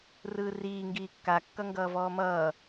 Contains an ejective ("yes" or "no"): no